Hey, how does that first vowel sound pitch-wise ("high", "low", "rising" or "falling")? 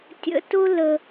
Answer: high